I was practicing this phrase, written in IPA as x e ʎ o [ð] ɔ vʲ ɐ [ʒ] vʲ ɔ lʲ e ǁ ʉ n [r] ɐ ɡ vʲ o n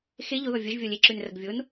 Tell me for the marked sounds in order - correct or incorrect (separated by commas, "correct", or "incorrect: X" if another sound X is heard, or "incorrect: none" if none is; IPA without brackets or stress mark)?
correct, correct, correct